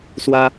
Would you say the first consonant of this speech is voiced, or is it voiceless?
voiceless